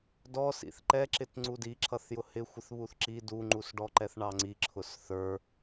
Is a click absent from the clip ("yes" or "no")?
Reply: no